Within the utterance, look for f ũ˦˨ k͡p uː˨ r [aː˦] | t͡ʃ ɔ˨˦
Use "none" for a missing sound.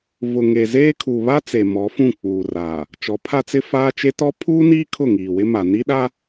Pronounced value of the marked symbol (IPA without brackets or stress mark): aː˨